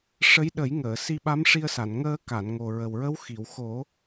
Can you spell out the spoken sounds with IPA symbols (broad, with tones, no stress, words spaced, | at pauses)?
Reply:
ʂə˧˥j ɗə˨˩˦jŋəː˨˩˨ si˧ɓa˧˥mʂi˧ə̯sa˨˩˨n ŋəː˧ka˨˩˨n ŋo˨˩ɹə˨˩wɹə˧˥w xi˨˩˨wxo˨˩˦